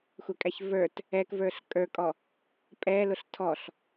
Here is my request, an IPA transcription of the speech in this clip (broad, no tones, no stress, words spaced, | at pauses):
xʷɛkʼæçvə˞t | ɛk və˞ɬkʼə˞kʼɔ | pʼɛlʊɬ tʰɔɬ